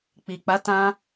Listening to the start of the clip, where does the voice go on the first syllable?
low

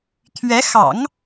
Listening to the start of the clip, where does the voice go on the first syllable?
rising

